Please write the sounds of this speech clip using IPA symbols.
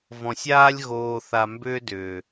v ɔ̃˨ sʲ aː˦ lʲ ɣ oː˨ θ a˨ m b ʏː˧ d ʏː˨

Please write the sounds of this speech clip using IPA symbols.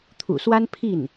t̪ʰ ṵ˨˩ s w a˥ n pʰ i˥˩ n

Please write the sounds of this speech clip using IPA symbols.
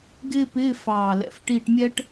ɡ ɪː˥ p ɪː˧˥˧ f ɑː˨˩ l ɛ̰˨˩˦ f ʈ iː˦˨ ʈ mʲ ɛ˥ ʈ

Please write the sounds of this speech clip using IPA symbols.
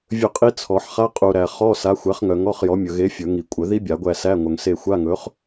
vʲ ɵ˦˨ qʼ i˦˥ t͡sʰ ɔ˨˩˦ ħ χ a˧˥˧ qʼ u˨ ɾ æ˨ χ ɔ˧˥˧ s a˨˥ xʷ æ˨˥ χ ŋ œ˨ ŋ ɔ˧˥˧ χ j ɔ˨˥ mʲ ɵ˨ ɣ e˨˥ fʲ ɵ˨˩˦ ŋ i˨˩˦ kʷʼ œ˨˩˦ ð i˦˥ bʲ a˨˩˦ ɡʷ æ˦˨ s æ˧˥˧ ŋʷ œ˨ ŋ s e˦˨ xʷ a˧˥˧ ŋ ɵ˨˥ χ

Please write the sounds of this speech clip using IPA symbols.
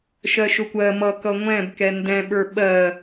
ʃ ɜ ʃ ʊ kʷ ɜ m ʌ k ʌ ŋʷ ɛ̃ b k ɛ n d ɛ̃ ɓ ə˞ ɓ ɜ

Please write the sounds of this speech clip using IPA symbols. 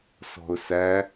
s ɔ̤ ʊ̯ s æ

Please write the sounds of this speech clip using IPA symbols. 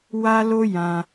w a˦ l o˦ j ã˧

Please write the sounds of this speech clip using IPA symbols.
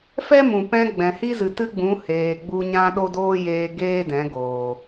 f ɛ˦ m ũ˨ p ɛ̃˧ ɡ͡b ɛ̃˨ h i˦ z ɨ˨ t ɨ˦ ɡ͡b ũ˨˦ h eː˨ ɡ͡b u˧ ɲ ã˦ ɗ o˦ d oː˦ j eː˧ ɡ eː˦ d ɛ̃˨˦ ɡ oː˨

